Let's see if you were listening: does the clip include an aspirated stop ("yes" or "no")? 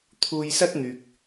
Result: yes